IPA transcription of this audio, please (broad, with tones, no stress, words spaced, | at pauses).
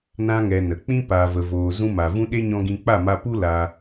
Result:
nã˧ŋɛ˨ nə˨k͡pĩ˦ paː˨və˨ voː˨ zũ˧ma˨ vũ˧ɗe˦ɲɔ̃˧ ɡĩ˧k͡pa˦˨ma˧ pu˦ la˧